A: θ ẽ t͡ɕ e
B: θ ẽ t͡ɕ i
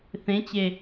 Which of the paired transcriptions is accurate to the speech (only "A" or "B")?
A